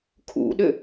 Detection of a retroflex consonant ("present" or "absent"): absent